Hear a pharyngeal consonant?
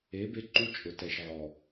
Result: yes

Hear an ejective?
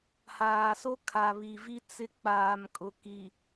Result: yes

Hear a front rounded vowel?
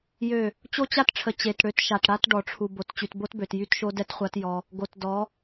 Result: yes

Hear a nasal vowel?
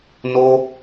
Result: no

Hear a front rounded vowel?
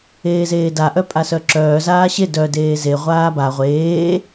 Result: yes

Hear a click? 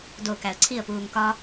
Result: yes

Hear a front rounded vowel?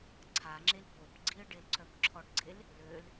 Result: yes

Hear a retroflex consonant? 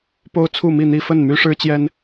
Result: yes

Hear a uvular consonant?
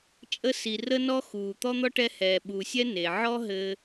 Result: no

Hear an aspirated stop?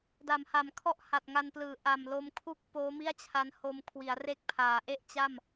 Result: yes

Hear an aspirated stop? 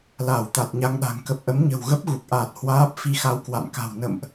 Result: no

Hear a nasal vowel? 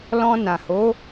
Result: yes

